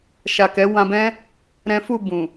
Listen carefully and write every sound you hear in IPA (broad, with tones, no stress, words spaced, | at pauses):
ʃa˨kɛ˨˦wã˧bɛ̃˦ | ɾɛ̃˦ fu˦˨ bũ˨